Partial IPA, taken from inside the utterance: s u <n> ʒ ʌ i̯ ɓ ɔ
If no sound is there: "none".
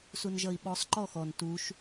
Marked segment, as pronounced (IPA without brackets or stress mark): n